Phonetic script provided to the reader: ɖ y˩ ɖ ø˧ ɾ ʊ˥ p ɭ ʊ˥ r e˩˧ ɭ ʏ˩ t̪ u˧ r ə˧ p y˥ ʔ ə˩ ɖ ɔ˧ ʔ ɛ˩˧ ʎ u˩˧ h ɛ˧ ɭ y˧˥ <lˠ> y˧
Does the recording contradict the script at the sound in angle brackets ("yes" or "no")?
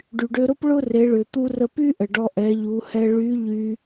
yes